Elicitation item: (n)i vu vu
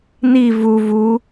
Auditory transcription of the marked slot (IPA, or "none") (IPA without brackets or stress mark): n